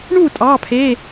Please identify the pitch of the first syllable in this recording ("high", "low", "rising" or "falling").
falling